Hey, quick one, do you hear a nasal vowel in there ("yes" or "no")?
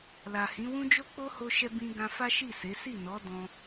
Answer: yes